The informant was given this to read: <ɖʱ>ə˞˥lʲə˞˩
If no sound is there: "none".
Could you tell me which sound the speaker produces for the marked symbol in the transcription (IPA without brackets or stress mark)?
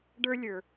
ɖ